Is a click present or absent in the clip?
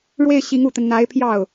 absent